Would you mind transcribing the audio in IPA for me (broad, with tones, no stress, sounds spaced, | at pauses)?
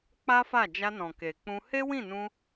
k͡p a˦ f a˦˨ d͡ʒ a˧ n ɔ̃˨ k e˨ k͡p ũ˧ h e˦ w ĩ˦˨ n ũ˧